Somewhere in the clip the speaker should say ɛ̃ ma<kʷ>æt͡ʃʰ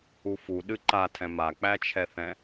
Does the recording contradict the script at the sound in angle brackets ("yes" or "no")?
yes